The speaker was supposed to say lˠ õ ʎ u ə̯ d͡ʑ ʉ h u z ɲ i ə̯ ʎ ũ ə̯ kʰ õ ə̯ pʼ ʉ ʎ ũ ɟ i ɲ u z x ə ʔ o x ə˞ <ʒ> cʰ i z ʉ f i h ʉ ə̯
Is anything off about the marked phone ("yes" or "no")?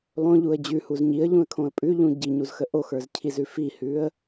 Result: yes